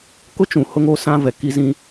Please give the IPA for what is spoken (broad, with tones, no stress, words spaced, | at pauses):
kʊ˦ t͡ʃũ˨hʊ˦ŋ o˦ sã˦ vɛ˨ki˦ zĩ˦